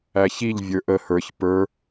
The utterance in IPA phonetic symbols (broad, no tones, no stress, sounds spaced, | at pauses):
æ ç i ʎ vʲ ə˞ ʔ ə h ə˞ ç p ə˞